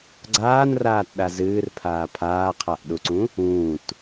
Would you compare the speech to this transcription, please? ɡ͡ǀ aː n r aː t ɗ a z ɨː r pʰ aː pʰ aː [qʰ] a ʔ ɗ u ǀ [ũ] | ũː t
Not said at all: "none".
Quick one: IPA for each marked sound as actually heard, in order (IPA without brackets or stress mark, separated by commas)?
qʰ, ũ